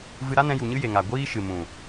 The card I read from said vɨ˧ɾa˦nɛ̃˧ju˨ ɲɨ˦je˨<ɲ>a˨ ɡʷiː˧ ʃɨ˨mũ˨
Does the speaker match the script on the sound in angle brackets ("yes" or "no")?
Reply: no